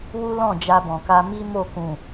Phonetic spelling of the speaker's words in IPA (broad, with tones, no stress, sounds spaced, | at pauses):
w u˦ l ɔ̃˦˨ d͡ʒ a˧ b ɔ̃˨ k a˧ m i˦ m o˦˨ k ũ˨